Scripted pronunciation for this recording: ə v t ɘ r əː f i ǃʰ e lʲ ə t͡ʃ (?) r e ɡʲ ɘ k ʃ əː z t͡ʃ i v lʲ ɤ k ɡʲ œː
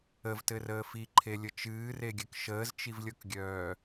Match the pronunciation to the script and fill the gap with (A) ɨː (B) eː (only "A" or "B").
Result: A